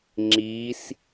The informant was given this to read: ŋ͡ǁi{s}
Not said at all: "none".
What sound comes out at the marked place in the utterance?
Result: s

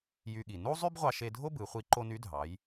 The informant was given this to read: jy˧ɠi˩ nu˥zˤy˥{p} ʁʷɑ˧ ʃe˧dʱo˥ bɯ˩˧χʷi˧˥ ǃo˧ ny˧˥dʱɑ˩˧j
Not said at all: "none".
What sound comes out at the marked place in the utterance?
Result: b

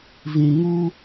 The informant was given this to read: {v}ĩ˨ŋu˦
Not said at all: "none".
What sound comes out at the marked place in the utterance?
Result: v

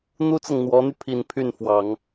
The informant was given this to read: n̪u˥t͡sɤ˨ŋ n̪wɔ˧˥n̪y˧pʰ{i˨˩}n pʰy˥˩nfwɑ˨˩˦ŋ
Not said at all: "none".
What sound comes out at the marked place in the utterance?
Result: i˨˩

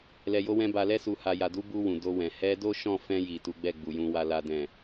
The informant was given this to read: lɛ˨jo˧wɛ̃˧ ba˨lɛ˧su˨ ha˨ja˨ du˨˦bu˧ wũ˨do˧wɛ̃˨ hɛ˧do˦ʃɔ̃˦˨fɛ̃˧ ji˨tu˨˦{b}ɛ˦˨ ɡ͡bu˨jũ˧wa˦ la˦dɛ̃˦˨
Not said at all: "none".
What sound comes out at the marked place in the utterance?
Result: ɡ͡b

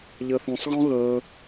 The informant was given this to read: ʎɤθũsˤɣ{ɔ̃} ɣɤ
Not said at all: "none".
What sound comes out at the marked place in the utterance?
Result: ɔ̃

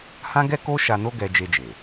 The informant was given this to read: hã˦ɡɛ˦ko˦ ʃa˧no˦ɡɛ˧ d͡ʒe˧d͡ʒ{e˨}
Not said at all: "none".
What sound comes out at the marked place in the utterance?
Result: e˨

